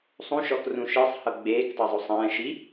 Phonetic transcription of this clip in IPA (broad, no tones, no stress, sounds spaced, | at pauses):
sˤ ũ ʃ ɔ k r ũ ʃ i sˤ h ɤ ɡ͡b eː k tˤ ɛ zˤ o sˤ ɛ̃ː ʃ i